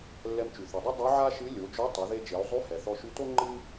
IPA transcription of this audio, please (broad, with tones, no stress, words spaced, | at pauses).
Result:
lːɛ˧mt͡ʃy˩θy˩dˤɨ˥ dˤy˧˥ʕa˥ʃɨ˧˥ lʲo˩˧d͡ʒo˧˥ tˤo˩˧ðe˧d͡ʒe˩˧u̯zˤy˧˥ hɛ˩θɔ˧ʃy˧˥to˥ ŋ͡ǃɨ˥